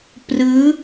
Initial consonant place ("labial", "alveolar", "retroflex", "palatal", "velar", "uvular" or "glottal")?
labial